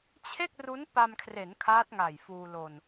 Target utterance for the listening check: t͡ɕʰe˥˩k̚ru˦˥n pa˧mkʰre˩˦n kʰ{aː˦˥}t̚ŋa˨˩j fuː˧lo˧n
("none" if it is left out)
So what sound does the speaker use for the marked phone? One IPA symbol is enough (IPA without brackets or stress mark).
aː˦˥